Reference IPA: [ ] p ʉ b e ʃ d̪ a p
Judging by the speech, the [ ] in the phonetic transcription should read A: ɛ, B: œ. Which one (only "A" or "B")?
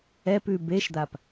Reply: A